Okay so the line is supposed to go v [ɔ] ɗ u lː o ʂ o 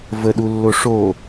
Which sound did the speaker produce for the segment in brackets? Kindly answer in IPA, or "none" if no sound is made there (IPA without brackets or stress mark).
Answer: ə